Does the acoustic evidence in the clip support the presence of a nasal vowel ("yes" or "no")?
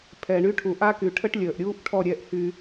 no